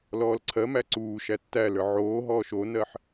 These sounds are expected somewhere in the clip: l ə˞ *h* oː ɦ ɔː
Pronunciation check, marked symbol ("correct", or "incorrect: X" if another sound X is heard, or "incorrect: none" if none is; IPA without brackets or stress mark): incorrect: ʕ